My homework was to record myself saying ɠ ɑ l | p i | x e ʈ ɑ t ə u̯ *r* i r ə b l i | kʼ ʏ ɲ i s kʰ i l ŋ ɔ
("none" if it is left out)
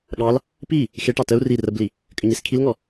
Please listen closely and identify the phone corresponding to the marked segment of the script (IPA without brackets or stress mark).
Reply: r